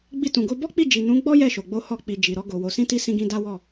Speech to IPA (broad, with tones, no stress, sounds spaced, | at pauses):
ɡ͡b i˧ t ũ˨ ɡ o˧ b ɔ˦ k͡p i˦˨ d͡ʒ i˨ n ũ˨˦ ɡ͡b ɔ˦ j ɛ˦˨ ʃ o˨ ɡ͡b o˧ h ɔ˧ k͡p i˨ d͡ʒ i˨ ɾ ɔ˧ ɡ o˨ w o˨ s ĩ˧ t i˧ s ĩ˧ ɡ ĩ˧ d a˦ w ɔ˦˨